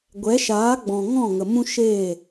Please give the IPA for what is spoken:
ɡʷ ɛ˨˦ ʃ aː˨˦ ɡ͡b ɔ̃˨ ŋ ɔ̃˦˨ ŋ ə˨ m ũ˦ ʃ eː˦˨

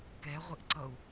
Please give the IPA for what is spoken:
k ɛ ʁʷ ɘ ʔ ǀ ʌ u̯

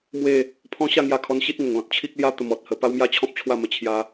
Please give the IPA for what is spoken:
m w e˥˧ | pʰ ɔ̃˦ ɕ a˥˧ ŋ j a˧ kʰ ɔ˧ n ɕ i˦ t̚ ŋ ə˨˩ ŋ l ɔ̃˨ t̚ t͡ɕʰ i˦ k̚ l j a˦ t̪ ə˧ m ɔ˨ t̚ h ə˧ p a˦ w m j a˥˧ t͡ɕʰ ɔ̃˦ p̚ t͡ɕʰ w a˥˧ m ə˧ t͡ɕʰ j a˧

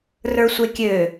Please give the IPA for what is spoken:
r ə˞ sʷ e kʲ ø

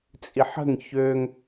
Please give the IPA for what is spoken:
t͡sʼ i ħ ə̤ ŋ ç ø ŋ

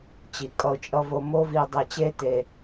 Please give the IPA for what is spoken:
t͡ɕ i˨ kʼ ʌ˧ ʊ̯ t͡ʃʼ ʌ˧ v o˧ m o˦ v i˧ dˤ e˧ t͡ɕ e˦ t e˧

